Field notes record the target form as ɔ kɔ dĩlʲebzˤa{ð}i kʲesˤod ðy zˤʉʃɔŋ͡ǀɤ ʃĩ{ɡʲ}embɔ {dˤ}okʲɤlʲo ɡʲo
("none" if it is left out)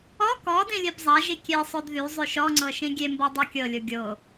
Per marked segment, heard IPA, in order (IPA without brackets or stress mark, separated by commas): ʒ, ɡʲ, dˤ